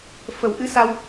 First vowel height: mid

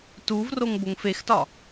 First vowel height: high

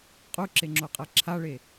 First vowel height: high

